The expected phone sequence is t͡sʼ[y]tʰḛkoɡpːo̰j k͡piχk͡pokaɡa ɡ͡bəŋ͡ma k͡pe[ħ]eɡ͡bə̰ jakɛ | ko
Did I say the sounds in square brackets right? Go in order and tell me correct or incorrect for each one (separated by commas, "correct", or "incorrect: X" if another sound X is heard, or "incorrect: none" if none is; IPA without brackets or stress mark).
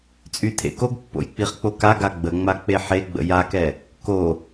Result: correct, correct